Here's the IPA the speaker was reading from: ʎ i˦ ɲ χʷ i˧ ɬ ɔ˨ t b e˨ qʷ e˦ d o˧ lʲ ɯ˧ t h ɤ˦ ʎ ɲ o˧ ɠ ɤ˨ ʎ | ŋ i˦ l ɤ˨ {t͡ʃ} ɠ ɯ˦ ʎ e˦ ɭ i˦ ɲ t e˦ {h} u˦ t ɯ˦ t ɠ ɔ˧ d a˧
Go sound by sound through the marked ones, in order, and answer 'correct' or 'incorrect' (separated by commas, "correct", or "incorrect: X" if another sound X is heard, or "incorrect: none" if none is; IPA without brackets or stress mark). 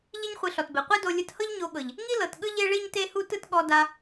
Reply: incorrect: t, correct